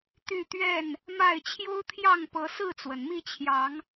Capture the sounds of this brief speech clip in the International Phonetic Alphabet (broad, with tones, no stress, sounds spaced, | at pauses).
t̪ y˥˨ t̪ ɥ ɛ˥˨ n | m a˥˨ ɪ̯ t͡ɕʰ j o˦ ʊ̯ t̪ʰ j ɑ˥˨ ŋ p ɤ˨˦ s ɹ̩˥˨ t͡s w ə˩ n m i˥˨ t͡ɕʰ j ɑ˨˦ ŋ